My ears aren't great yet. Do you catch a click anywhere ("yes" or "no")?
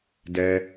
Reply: no